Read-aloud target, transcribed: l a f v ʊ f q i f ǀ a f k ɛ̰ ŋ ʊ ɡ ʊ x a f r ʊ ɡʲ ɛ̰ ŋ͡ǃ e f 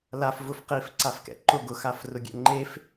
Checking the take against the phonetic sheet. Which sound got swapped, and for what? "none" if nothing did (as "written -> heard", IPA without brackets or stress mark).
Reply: ŋ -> ǃ